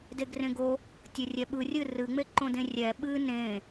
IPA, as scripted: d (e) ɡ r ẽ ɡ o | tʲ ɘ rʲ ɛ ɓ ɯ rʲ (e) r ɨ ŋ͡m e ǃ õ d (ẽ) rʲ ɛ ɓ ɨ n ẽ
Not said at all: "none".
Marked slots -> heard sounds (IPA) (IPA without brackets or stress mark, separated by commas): e, ɨ, ẽ